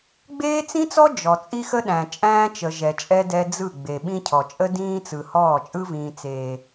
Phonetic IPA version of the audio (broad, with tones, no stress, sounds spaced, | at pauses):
ɡ͡b eː˦ t͡s ĩ˦ t͡s ɔ˦ d͡ʒ ɔ˨ t͡sʼ i˦ x ə˦ ɗ æ̃˨ t͡ʃʼ æ̃ː˦ t͡ʃ ə˨ ʒ ɛ˨ t͡ʃʼ ɛ˦ d ɛ˦ d͡z ɯ˦˨ ɡ͡b e˨ ɓ ĩ˦ cʰ ɔ˨ t͡ʃʼ ə˦ d ĩː˦ t͡s ɯ˨ h ɔː˦˨ t͡ʃʼ ɯ˦ v ĩː˦ t͡s eː˦